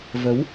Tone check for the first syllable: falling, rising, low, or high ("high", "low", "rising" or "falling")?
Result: rising